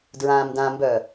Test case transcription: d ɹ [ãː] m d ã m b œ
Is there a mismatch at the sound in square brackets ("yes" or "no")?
no